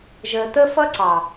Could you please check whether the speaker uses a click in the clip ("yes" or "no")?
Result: yes